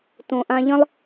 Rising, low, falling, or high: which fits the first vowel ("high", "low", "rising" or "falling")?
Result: low